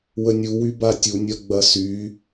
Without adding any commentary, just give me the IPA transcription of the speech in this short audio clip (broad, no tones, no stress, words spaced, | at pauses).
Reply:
wənʲuwy batʲunʲɐ ɡ͡bɐsy